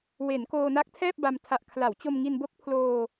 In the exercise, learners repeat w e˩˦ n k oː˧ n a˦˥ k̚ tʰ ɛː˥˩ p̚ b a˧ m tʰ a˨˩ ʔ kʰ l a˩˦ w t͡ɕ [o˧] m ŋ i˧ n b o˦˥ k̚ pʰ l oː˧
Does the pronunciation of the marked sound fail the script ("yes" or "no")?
no